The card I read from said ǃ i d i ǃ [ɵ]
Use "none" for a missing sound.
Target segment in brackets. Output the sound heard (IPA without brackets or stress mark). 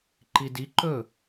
ɵ